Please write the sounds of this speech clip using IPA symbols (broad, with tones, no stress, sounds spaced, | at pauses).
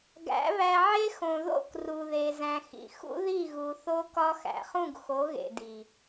ɡ æ̰˨˦ β æ˧ ʕ e˦ x õ˨ ð o̰˦˨ k r u˨ ð e˨ z æ̃˨ x ḭ˨ x ṵ˦ ð i˦˨ ɣ u˨ θ o˧ k ɒ˧ x æ̰˨ χ ũ˦˨ ɡ x o˨˦ ɣ ḛ˨ d i˨